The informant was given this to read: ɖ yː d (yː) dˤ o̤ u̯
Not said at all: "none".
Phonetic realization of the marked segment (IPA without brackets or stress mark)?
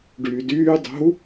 yː